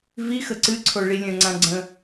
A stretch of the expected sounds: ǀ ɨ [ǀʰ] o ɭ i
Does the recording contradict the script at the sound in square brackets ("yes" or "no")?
no